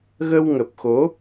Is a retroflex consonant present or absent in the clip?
absent